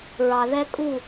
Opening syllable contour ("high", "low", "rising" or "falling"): low